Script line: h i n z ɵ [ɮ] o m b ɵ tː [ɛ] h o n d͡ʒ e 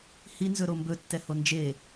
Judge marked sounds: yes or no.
no, yes

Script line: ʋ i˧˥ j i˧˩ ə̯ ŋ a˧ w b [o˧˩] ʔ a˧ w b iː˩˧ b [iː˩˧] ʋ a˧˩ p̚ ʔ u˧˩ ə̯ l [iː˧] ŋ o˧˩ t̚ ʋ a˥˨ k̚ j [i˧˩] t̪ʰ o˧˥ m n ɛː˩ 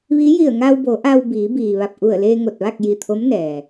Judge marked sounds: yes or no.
no, no, no, yes

